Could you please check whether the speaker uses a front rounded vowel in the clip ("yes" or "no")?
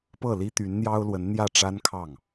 yes